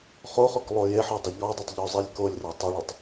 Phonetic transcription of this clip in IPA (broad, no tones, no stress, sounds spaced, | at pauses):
χ o χ o k lˠ o j e ħ ɔ dˤ e ʎ ɔ dˤ ɐ tˤ ʎ o zˤ e lʲ k o lʲ r ɐ tˤ ɐ ɭ ɔ tˤ